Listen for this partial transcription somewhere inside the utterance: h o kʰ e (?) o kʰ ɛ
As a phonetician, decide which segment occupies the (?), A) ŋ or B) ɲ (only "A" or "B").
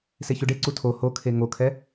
A